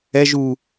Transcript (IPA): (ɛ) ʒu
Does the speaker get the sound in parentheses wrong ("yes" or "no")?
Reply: no